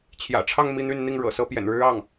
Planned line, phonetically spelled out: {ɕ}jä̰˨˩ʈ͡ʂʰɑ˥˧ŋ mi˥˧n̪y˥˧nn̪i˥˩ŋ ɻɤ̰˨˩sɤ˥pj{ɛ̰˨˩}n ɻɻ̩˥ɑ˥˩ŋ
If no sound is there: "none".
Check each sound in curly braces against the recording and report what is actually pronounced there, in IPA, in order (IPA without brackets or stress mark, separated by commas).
t͡ɕʰ, ɛ̰˨˩